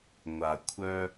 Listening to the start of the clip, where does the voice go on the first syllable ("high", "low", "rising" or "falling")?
low